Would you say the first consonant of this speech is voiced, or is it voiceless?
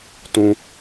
voiceless